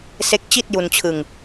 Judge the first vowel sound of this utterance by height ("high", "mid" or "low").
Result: mid